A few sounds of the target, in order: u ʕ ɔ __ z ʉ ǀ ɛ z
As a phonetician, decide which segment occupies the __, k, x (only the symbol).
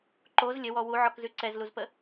k